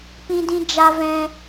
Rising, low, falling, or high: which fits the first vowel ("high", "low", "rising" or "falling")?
high